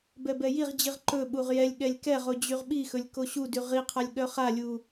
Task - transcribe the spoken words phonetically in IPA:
bɛbɛjiʁd͡ʑiʁ ǃɵ ɓuʁjɛlʲɠɛlʲ kɛʁo d͡ʑyʁɓixɵlʲ koɕudy ʁiqʰalʲ ɠœχalʲu

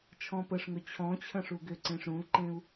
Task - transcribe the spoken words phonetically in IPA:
t͡ʃʰɔ̃pəʂŋɵ t͡ɕʰɔ̃t͡ɕʰə̃ ʂuɡʏǀẽʂ ɾũlǃẽu̯

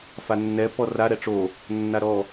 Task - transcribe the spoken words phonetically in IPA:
fanːɛ pɔra ɾɛʈ͡ʂo | nːaɾɔ

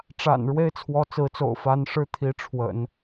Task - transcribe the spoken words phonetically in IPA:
ʈ͡ʂa̰˨˩n ɻwe˥ɪ̯t͡sʰwɔ˧˥t͡sɹ̩˧˥t͡so̰˨˩ʊ̯ fa˧˥n ʂɻ̩˥t̪ʰi˧˥ʈ͡ʂʰwə̰˨˩˦n

